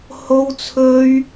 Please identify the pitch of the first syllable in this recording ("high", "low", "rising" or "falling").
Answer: high